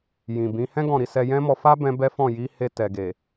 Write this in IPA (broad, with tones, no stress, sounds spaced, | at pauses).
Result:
j ĩ˨ b ĩ˨˦ h ɛ̃˦ ɡ ɔ̃˦˨ ɾ i˧ s ɛ˧ j ɛ̃˦ m ɔ˧ f a˦ b ɛ̃˦ b ɛ˦ f ɔ̃˦˨ j i˨˦ h e˧ t ɛ˨ ɡ e˨